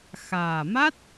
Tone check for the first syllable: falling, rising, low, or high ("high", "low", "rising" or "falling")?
low